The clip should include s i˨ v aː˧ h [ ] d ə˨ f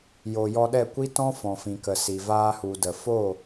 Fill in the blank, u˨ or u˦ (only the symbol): u˨